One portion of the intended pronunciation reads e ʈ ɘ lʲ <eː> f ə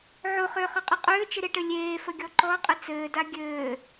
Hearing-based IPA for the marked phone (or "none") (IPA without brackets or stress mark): eː